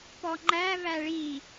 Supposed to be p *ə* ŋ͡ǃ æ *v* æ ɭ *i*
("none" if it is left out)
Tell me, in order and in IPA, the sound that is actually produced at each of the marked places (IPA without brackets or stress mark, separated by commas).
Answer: ɔ, v, i